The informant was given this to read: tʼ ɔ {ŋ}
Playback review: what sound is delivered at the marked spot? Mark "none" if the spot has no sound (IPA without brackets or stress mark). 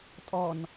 n